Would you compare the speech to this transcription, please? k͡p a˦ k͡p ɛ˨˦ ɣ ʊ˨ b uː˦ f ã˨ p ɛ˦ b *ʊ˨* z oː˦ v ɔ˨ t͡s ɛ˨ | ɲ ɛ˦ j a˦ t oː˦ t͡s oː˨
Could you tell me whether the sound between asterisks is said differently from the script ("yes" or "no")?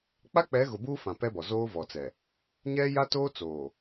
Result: yes